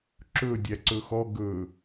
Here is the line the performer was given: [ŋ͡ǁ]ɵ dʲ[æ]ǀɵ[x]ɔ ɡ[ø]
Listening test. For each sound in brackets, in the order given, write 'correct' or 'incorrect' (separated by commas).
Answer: incorrect, correct, correct, incorrect